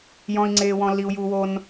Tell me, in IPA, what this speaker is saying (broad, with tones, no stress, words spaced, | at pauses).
jɔ̃˦i̯ŋ͡ǀeː˦wɔ̃˦ lːi˦u̯juː˦wo˦n